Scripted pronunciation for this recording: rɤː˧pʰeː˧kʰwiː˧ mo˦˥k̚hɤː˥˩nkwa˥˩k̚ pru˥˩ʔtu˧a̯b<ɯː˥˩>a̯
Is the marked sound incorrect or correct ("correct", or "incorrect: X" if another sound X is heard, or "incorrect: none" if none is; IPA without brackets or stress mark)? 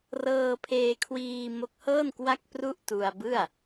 incorrect: ɯ˥˩